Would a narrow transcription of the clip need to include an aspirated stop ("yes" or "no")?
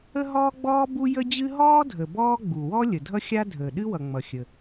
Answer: no